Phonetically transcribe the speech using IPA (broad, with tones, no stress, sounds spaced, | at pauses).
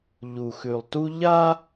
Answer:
ʎ u˨ x ʉ˨ lˠ t u˦ ʎ a˦